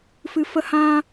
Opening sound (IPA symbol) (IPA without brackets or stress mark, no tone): f